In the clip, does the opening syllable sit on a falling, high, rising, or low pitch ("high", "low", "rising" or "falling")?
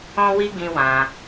high